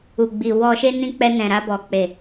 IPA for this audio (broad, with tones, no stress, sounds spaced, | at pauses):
u˨ ɡ͡b i˨ w ɔ˨ ʃ e˧ n ĩ˧ k͡p ɛ˧ n ɛ̃˨ ɾ a˧ b ɔ˨ k͡p e˨